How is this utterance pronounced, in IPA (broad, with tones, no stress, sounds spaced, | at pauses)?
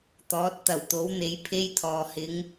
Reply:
t̪ ɔː˨˥ t̚ t̪ ɐ˨˩ w t̪ o˨˥ w n̪ e˨˥ j pʰ e˥ j t̪ʰ ɔː˨ h ɪ˨˧ ŋ